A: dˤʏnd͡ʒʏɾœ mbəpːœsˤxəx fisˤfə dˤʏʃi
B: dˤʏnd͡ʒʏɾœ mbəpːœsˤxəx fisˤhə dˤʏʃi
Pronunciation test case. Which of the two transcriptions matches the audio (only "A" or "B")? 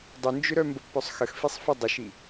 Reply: A